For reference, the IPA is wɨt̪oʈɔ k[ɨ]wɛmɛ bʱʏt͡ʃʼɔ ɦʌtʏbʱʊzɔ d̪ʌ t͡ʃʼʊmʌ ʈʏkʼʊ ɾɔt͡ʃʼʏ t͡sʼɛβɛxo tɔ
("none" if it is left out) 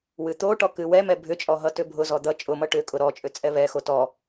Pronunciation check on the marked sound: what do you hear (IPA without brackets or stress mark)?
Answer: ɨ